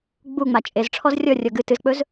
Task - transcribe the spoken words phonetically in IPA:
ɡ͡buŋ͡ma t͡ʃʼezʈ͡ʂʰɔz rʲɔrʲɔ ɡɨ tɨzk͡pɵz

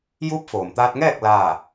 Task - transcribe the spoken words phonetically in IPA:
juː˧˥p̚foː˩mt̪aː˧t̚ŋɛː˥˨k̚ laː˥˨

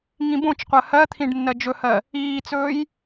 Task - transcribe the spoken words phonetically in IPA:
ŋĩbõt͡ʃqʷɜ hɜt̪ʰĩɖ nːɜd͡ʒɵhɜ | iːt͡sɵːj

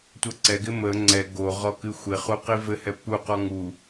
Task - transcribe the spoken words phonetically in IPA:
tʷʌǀɛɡɪ mə ŋ͡ǀɛ ɡoʁɔ kɨxʷɪχu qivɘhɛ puqɔ ŋu

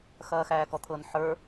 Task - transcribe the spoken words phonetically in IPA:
xɐːxæːkɔt̪ʰɤn ħə˞

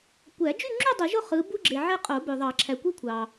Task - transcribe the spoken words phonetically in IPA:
kʷæ˨˩˦d͡ʒy˥˧ŋ͡ǁy˥˧ dˤɯ˨˩˦ʒo˥˧ χɯ˨˥ bu˥ɡ͡ǁe˨ʕe˥˧ qʼo˨˩˦bø˨ðˤɑ˨˩˦ ǁʰæ˨kʷi˥kʷʰɑ˨

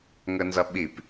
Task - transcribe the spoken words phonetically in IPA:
ŋənzʌɓip

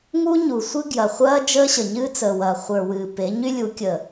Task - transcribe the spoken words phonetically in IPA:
ŋu˦ɲu˨ sʷɨ˦ɡjɐ˨ χʷɐː˦ d͡ʒəː˦ɕə˨ ɲɨː˦t͡səː˨wɐː˨ χʷə˞˨wɨː˨ pe˨˦ɲy˦lʲu˨˦ kʲə˨

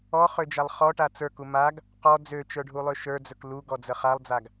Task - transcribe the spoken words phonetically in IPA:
ɔχød͡ʒalˠ χɔʈa t͡sə˞ku maɡ | qɔ d͡zøt͡ʃə˞ɖʱulˠø ʃə˞d͡zɵk luɡɔd͡zə χalˠd͡zaɡ

